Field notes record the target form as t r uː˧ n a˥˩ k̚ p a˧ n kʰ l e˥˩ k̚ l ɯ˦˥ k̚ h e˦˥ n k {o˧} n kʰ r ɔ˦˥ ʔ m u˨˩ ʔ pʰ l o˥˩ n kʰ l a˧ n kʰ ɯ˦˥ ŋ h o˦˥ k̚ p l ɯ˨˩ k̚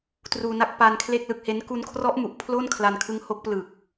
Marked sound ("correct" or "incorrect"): incorrect